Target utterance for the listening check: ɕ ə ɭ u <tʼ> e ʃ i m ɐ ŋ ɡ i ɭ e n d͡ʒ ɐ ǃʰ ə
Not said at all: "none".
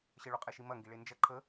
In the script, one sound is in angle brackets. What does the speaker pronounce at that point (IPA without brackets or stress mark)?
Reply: qʼ